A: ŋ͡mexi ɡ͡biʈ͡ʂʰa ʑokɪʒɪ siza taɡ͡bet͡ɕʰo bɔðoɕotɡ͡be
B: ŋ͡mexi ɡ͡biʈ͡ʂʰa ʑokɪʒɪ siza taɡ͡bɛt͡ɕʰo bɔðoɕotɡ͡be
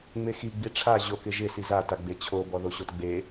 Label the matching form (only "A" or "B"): A